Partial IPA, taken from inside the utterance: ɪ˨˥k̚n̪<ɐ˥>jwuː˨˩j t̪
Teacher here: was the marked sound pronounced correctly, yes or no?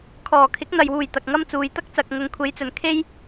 no